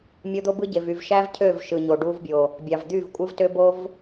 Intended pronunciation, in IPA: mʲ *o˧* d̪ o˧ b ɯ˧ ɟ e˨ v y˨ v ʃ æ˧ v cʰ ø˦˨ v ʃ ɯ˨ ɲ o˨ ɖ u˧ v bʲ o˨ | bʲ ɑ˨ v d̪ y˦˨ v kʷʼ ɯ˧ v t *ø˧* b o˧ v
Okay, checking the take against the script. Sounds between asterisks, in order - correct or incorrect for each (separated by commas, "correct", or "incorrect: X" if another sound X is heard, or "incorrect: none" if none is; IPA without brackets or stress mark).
correct, correct